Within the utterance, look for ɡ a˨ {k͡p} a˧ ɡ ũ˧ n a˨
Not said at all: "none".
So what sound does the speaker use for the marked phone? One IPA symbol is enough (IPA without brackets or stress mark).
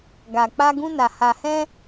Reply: k͡p